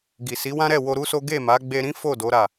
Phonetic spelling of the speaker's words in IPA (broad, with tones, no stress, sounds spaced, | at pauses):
ɡ i˨ s i˨˦ w ã˦ ɾ ɛ˦˨ w o˧ ɾ u˦ s o˦ ɡ e˦˨ m a˨˦ ɡ͡b e˧ ɾ ĩ˦ f o˦˨ d o˨˦ ɾ a˦˨